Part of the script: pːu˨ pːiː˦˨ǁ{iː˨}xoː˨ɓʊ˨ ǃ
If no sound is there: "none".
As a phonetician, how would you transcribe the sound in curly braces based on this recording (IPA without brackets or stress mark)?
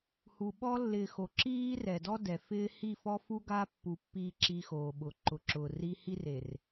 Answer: iː˦